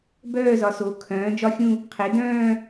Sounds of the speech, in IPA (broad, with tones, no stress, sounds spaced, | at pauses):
b œː˥˧ z ɒ˩˥ s o˩˥ kʰ œ̃ː˩˥ d͡ʒ ɒ˥˧ xʲ ũ˥˧ | qʰ e˩˥ d œ̃ː˥˧